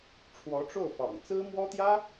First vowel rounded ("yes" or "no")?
yes